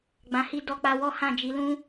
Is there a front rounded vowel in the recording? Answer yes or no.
no